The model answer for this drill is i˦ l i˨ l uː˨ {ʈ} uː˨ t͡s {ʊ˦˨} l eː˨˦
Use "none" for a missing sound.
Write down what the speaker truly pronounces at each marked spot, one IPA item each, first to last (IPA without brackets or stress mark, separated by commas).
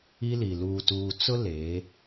t, ʊ˦